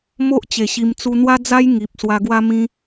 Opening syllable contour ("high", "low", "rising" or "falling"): high